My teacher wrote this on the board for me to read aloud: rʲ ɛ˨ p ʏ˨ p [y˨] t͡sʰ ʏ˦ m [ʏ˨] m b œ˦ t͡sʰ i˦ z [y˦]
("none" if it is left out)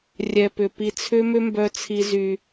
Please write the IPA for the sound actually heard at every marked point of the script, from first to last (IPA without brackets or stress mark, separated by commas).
i˨, ʏ˦, y˦